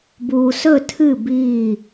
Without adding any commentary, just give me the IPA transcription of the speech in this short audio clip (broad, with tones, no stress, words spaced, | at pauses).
buː˨sɵ˦˨tʰɨ˦˨ biː˦˨